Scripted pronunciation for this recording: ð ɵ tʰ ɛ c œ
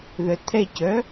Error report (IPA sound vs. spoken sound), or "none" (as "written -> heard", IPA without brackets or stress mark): ɵ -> œ